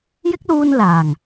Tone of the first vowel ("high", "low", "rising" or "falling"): high